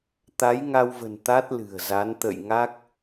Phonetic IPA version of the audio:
t̪ a˨˦ j ŋ a˧ w v ə̤˨˩ n t̪ a˦˥ t̚ l ɨ̤˨˩ ə̯ z a˨˦ n t̪ ə̰˧˨ j ŋ a˦˥ k̚

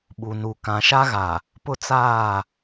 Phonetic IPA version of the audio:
ɓ u˨ n u˨ k ã˨ ʃ a˦ ɣ a˨ | p ʊ˦ t͡s aː˦˨

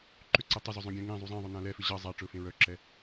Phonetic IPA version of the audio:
ǃ ʏ ǀ ɛ tˤ ʏ z ɵ zˤ œ̃ ɡʲ ɛ̃ ŋ ẽ zˤ u zˤ ɛ̃ ðˤ ɵ n ã l ɛ f ʏ ʑ ʌ zˤ a ʈ͡ʂ ɵ f ẽ ɹ œ ǁ ɛ

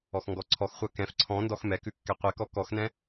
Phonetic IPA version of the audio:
ɔ x ŋ ɡ ɔ ǀʰ ɔ x χʷ ɜ k ɛ̃ f ǀʰ ɔ̃ n d ɔ x m ɛ k ʉ kː ɛ qʷ ɛ k ɔ k ɔ x n ɛ̃

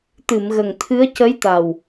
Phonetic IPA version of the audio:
t̪ ɨ˨˩˨ m ɣ ə˨˩ ŋ t̪ʰ ɨ˧˥ ə̯ c ə˧˥ j t̪ a˨˩ w

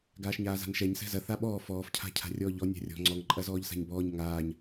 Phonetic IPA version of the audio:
ɡ aː ʃ ɲ aː z a̤ n ʃ ɛ ɲ s ɛ̤ z ɐ θ a ɓ ɔː f ɔː f cʰ a̤ cʰ a̤ rʲ ɔː ʎ ɔ nʲ a̤ rʲ ɔ̤ ŋ͡ǀ ɔ ŋ ǃʼ ɐ z ɔː ʎ s a̤ ɲ b ɔː ɲ ŋ aː ɲ

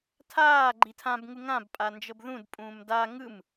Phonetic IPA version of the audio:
tʰ aː ɡ͡ǃ i tʰ ã b ŋ u ŋ ã b pʼ a n d͡ʒ ɤ b ð ũ d pʼ ũː m d a ŋ ɯ m

